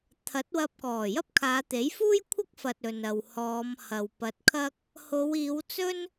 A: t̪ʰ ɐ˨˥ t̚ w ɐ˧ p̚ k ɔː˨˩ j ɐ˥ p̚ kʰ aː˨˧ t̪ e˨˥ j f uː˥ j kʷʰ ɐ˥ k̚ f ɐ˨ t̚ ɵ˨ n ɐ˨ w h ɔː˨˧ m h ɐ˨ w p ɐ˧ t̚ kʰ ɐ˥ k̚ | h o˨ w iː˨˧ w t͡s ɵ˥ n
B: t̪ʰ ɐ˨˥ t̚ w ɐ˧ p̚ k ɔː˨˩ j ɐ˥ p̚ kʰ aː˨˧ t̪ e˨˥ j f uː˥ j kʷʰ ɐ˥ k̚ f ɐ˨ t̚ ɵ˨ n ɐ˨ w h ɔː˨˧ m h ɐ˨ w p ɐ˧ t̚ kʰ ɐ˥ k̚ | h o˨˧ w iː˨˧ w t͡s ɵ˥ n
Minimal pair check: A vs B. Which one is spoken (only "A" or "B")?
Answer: B